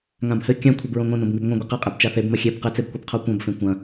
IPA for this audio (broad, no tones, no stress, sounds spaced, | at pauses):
ŋ ã b h ɘ kʲ ã kʷʰ i b ɹ õ ŋ õ n õ b ŋ i b ŋʷ ɐ̃ ɡʷ ɘ q ɐ qʼ e b t͡ʃ a θ e b m ɐ xʲ e b q ɘ t͡s e b kʷ e b qʰ o kʷ ɐ̃ b f ẽ kʷ ɐ̃